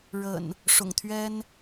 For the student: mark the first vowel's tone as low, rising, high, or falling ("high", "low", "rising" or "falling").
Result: low